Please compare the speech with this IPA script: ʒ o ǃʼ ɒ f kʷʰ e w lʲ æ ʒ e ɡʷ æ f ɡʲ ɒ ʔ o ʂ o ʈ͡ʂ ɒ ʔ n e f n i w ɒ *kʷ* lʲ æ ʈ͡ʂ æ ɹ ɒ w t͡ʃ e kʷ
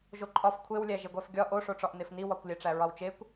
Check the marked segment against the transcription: correct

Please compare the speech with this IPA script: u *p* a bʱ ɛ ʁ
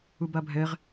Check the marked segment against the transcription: incorrect: b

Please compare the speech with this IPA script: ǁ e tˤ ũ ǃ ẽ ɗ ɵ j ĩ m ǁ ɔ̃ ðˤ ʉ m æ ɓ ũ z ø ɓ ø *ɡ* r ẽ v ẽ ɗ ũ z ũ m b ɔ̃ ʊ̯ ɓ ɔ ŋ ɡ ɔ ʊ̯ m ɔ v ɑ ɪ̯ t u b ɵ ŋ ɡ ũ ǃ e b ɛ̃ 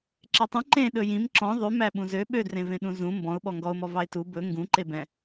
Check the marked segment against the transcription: incorrect: d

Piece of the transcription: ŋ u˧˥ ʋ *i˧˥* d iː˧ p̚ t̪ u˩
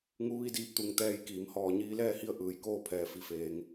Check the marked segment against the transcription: incorrect: i˥˨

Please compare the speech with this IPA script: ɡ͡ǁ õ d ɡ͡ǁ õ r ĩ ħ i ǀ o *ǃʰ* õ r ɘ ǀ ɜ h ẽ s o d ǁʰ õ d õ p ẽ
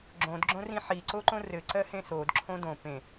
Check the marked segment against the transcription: incorrect: ǃ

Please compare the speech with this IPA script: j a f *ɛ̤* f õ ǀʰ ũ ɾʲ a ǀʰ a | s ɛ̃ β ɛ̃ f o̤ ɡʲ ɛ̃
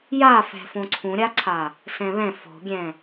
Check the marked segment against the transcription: correct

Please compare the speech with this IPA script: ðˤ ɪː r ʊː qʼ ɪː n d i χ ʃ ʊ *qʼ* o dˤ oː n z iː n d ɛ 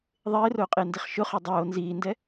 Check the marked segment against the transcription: incorrect: χ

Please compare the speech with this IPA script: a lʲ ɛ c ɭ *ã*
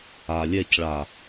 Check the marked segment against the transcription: incorrect: a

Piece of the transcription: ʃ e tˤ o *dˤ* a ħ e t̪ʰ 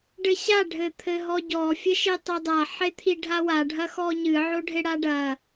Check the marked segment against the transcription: correct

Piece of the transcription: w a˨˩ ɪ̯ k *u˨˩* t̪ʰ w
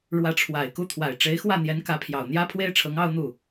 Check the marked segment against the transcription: incorrect: u˥˩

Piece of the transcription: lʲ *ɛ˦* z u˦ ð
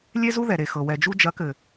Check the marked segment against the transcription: incorrect: e˦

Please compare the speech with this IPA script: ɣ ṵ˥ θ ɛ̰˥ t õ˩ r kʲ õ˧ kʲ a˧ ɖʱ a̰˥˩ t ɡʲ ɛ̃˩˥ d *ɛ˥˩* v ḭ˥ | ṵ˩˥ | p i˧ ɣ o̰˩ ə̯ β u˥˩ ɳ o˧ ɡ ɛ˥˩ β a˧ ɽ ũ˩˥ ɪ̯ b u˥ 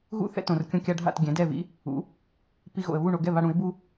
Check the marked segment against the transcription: correct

